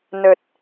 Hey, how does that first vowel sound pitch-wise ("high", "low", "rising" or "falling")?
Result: low